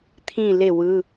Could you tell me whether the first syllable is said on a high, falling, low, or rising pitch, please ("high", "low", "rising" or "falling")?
falling